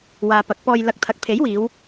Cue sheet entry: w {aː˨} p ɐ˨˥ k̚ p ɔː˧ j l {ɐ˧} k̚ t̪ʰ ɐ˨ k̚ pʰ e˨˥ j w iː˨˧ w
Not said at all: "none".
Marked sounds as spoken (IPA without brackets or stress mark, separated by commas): aː˨, ɐ˧